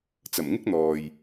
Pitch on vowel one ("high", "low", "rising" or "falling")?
low